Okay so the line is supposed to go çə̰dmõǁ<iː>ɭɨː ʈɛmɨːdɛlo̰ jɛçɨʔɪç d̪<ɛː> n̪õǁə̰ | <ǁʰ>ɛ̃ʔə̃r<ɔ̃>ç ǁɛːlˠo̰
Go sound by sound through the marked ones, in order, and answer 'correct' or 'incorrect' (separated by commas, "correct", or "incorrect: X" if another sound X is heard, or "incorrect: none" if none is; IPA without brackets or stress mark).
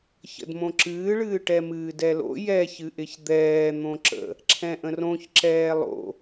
incorrect: ɨː, correct, correct, incorrect: õ